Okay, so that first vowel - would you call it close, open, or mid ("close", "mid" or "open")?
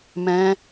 mid